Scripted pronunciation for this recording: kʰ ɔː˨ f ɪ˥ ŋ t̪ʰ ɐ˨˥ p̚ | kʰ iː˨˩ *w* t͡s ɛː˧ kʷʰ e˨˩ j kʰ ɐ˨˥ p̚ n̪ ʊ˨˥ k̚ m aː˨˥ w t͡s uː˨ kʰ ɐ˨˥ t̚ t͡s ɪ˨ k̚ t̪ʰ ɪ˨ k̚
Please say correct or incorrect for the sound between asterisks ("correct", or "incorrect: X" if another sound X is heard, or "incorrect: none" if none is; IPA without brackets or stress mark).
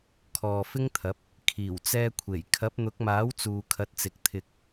correct